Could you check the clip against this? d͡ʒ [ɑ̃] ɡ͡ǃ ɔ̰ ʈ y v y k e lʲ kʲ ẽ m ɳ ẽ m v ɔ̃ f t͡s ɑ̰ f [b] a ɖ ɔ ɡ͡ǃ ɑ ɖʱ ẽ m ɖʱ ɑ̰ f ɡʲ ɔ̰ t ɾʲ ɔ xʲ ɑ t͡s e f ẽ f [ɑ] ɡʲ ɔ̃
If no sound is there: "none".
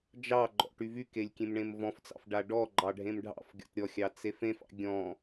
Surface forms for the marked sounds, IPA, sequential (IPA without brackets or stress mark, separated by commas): ɑ, ɖ, ɑ̰